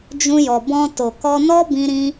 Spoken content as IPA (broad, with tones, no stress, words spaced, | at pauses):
d͡ʒũ˧jɔ˨bɔ̃˧to˨ kɔ˧nɔ˦ bĩ˧ɾĩ˧